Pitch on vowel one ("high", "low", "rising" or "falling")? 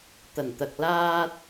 low